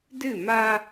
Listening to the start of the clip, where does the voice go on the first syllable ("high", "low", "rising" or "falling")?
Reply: falling